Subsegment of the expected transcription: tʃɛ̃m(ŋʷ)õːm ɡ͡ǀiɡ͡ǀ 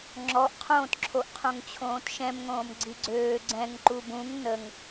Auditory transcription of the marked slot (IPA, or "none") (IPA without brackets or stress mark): ŋ